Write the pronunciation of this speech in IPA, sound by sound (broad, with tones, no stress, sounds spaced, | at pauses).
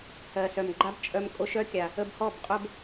h ɜ˨ s œ˨ m ɡ͡ǃ a˦ b t͡ʃʼ œ˧ m kʼ o˧ ʃ œ˦ kʲ a˨ | ə˧ b h ɔ˦˨ b qʼ o˦ b